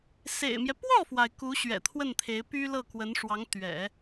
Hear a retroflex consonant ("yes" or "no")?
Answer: yes